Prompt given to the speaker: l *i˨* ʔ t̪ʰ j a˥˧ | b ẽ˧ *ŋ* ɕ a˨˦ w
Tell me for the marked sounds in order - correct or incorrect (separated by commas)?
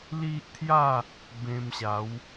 incorrect, incorrect